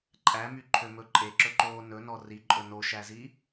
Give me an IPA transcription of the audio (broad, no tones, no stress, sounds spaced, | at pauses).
ǃʼ æ m y ǃʰ ø m ɵ ǃʼ e ǁ ɵ ǃ oː n ɵ n ɔ r i ǃʼ ɵ n o ʃ æ z i